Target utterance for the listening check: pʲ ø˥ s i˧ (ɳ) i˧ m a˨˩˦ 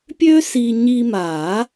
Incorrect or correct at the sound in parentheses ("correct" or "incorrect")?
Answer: incorrect